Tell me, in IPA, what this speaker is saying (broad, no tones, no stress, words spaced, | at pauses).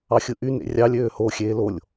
ɑxʲɯʔy nḛrʲɑlʲ øːho xʲeːlolʲ